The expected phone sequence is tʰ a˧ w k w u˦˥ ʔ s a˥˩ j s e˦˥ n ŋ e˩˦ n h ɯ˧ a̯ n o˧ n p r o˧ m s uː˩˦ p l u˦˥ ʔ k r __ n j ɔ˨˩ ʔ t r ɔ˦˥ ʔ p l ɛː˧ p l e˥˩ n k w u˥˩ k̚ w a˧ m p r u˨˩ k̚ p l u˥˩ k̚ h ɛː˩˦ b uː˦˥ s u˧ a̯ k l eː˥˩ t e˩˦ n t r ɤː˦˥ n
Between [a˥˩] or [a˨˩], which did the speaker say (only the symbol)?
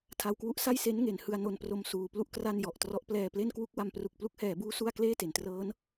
a˥˩